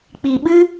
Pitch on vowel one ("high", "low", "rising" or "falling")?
low